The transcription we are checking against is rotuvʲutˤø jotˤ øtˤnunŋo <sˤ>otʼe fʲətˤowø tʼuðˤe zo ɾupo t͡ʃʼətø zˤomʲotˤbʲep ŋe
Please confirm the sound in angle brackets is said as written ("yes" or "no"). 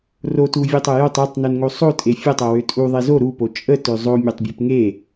yes